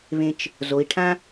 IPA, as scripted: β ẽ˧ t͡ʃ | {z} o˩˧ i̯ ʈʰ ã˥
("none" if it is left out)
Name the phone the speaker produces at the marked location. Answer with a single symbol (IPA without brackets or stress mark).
z